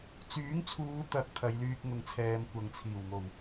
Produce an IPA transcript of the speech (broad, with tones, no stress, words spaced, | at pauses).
t͡syː˨˥ŋt͡sʰuː˨˧t̪ɐ˨k̚ t̪ʰɐ˨˧jlyː˧k̚ŋʊ˨˧ŋ t͡sʰɛː˨˧mkʷɐ˨ŋt͡sʰiː˨˩w ŋo˨˩w